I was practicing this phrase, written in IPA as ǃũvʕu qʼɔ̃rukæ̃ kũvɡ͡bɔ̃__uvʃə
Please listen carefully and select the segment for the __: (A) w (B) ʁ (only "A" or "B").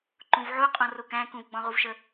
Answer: B